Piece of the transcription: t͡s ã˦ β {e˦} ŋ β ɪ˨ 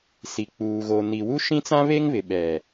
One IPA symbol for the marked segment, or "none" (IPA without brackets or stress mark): e˦